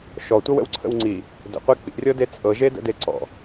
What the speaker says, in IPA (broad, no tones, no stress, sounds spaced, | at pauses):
ʃ ɔ tʷ ɤ w ə̰ w ǀʰ ə̰ w ŋ͡ǀ i | d ə̰ qʷ e k͡p ḭ rʲ ɤ d e t͡sʼ ɤ ʒ e d ə̰ d e ǀ ɔ̰